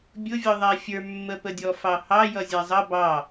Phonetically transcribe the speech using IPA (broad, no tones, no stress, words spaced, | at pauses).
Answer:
bʲʊvʲɔðˤæ fʲə˞mːəpə dʲɔfɑhɑ jʌzʲæzˤʌ bɑ